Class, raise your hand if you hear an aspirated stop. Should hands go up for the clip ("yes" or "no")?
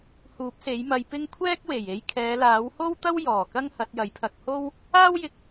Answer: yes